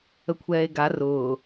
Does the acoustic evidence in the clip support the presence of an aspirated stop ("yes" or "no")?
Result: yes